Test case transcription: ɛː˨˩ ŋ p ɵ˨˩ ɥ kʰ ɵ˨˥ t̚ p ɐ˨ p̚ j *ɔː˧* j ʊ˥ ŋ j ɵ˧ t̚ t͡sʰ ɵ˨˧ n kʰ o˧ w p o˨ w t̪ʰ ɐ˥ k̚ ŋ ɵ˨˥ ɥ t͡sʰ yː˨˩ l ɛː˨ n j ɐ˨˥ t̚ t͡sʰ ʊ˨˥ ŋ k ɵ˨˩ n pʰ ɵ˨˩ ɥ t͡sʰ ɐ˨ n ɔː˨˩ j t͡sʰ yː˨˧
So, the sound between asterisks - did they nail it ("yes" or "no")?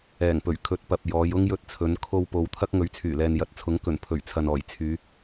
no